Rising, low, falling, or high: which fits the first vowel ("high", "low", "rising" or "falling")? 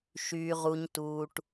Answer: low